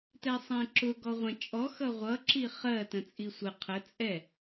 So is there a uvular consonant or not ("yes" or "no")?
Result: yes